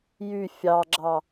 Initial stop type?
click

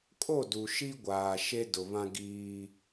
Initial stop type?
ejective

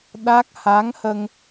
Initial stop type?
implosive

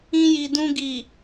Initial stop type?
plain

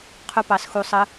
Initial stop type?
aspirated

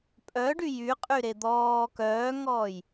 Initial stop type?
ejective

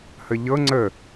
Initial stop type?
click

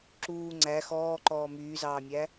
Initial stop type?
click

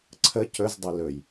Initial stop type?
click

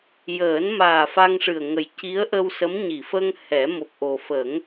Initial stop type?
plain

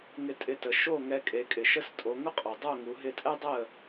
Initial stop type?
ejective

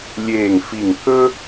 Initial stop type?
plain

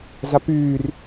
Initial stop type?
plain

